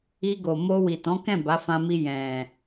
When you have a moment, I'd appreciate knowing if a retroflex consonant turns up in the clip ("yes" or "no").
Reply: no